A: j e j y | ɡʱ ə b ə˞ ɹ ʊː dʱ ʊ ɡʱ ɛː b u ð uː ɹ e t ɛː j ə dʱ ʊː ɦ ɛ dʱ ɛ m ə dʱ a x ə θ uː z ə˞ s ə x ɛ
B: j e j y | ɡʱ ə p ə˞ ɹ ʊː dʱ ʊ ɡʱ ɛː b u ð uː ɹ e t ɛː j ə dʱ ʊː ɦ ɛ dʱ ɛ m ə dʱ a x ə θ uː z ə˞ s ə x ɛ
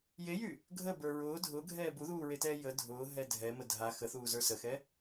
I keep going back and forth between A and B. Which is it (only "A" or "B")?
A